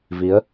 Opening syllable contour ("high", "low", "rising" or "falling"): rising